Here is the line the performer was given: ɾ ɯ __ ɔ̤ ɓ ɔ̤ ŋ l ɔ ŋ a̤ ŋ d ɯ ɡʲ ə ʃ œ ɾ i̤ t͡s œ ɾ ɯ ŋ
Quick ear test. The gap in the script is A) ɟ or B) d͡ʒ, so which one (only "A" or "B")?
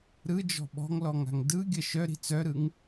B